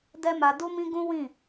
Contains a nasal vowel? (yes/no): yes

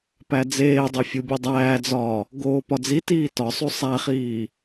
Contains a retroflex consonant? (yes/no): no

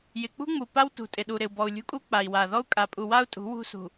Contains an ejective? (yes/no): yes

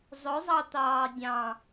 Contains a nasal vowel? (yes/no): yes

